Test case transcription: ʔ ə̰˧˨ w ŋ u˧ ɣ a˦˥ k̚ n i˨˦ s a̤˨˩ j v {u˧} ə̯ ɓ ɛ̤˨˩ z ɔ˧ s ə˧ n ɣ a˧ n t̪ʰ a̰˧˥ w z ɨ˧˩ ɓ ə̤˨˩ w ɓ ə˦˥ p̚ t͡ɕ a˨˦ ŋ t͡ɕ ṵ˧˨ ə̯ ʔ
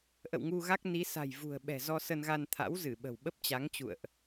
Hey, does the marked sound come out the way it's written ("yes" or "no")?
no